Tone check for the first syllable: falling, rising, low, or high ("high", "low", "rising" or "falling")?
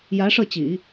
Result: rising